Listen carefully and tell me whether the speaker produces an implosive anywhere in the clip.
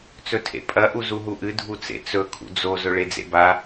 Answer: no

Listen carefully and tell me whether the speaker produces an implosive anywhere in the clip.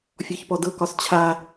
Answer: no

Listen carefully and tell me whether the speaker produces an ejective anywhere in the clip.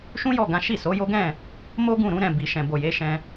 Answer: no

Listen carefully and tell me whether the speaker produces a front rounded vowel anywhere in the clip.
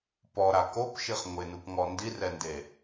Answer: no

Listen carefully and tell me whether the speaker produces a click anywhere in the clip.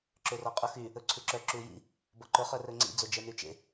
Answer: yes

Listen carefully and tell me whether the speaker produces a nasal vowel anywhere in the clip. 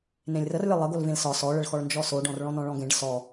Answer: yes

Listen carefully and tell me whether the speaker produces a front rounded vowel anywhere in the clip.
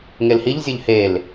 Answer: no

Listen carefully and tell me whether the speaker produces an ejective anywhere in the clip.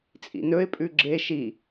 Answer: yes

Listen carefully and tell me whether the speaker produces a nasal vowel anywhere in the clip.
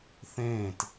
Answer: yes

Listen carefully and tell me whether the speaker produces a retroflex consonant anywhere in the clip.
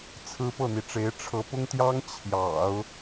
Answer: yes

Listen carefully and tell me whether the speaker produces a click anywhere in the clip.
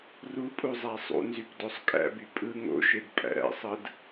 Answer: no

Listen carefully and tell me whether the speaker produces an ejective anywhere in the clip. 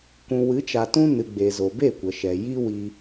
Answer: no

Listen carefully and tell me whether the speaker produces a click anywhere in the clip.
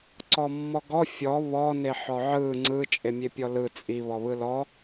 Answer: yes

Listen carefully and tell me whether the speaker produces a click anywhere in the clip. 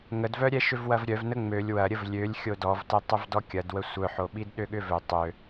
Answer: no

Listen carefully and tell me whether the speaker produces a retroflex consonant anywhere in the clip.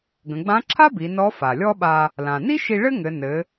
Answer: yes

